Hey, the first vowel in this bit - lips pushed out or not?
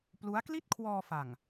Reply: yes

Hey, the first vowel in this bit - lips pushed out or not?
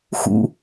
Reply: yes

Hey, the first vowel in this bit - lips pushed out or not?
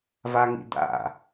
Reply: no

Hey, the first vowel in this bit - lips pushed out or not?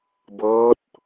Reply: no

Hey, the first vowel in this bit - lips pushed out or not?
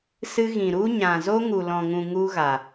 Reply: no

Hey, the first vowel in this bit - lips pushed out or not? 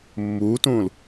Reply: yes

